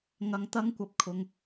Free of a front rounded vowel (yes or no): yes